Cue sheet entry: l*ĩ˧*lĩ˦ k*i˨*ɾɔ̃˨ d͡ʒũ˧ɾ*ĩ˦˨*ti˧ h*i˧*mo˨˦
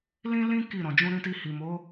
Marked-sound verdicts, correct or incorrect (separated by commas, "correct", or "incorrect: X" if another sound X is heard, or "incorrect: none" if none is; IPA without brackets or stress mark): incorrect: ĩ˦, incorrect: i˦˨, incorrect: ĩ˧, incorrect: i˨